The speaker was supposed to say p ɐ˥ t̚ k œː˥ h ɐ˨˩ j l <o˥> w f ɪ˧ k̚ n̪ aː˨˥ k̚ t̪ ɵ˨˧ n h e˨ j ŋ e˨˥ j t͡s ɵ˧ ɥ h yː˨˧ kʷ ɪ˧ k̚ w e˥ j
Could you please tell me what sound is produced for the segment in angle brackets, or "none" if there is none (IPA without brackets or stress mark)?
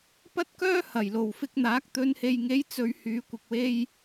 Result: o˨˩